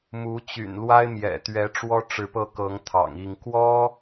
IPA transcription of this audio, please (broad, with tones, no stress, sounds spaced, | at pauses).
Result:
m u˧˥ t͡ɕ y̰˨˩ n l w a˥ ɪ̯ m j ɛ̰˨˩ t̪ ɥ ɛ˧˥ ʈ͡ʂ w ɔ˥ ʈ͡ʂ ɻ̩˧˥ p ɤ˥˩ k ɤ˧˥ ŋ t̪ʰ ɑ̰˨˩ ŋ i˥˩ ŋ k w ɔ˥